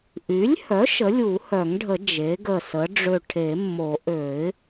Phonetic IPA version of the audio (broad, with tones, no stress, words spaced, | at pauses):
ʔy˩˥lʲhœ˩˥ʃ ə˩˥lʲu˨˩˦ hœ˨˩˦ŋɖʱə˨˩˦ d͡ʒe˩˥ɡə˧˩ sə˩˥ ɖ͡ʐø˧˩ʈʰe˨˩˦mːo˨˩˦ ʔø˨˩˦ɪ̯